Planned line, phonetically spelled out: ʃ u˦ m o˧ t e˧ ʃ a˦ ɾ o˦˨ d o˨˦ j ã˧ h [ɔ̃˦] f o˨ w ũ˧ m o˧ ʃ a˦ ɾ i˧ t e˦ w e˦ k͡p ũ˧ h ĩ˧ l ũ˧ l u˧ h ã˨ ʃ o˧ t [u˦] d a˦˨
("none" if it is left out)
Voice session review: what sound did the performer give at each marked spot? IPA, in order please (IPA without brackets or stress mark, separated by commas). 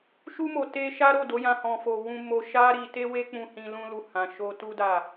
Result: ɔ̃˨, u˦